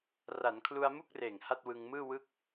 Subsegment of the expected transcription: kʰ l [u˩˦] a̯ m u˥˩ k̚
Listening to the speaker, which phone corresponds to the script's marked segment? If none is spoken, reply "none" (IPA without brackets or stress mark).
u˧